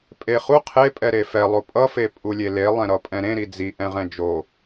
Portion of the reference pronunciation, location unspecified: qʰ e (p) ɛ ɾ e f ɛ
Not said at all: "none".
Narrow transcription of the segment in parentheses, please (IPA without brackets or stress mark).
pʼ